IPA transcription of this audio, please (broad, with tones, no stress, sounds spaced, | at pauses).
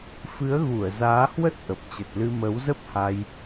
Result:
f ɨ˨˦ ə̯ ɣ u˧˩ ə̯ z aː˨˦ h w ə˦˥ t̚ ʔ ə˨˩ p̚ t͡ɕ ə˨˩ t̚ l ɨ˧ m ə˨˦ w z ə˦˥ p̚ h a˧ j